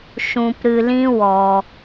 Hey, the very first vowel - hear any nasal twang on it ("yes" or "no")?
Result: yes